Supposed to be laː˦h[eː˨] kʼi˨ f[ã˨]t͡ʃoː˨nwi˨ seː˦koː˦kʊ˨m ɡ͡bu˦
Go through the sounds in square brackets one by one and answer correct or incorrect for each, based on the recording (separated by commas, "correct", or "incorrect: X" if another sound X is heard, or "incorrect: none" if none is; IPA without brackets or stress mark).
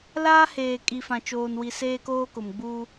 correct, correct